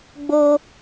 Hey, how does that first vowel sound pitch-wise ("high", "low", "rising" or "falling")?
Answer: high